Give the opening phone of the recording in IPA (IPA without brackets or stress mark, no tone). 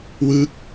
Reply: w